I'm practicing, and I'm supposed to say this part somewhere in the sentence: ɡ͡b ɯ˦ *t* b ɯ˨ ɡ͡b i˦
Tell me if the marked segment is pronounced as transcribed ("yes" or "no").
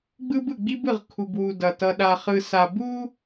no